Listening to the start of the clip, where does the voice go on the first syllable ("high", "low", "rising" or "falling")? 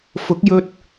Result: rising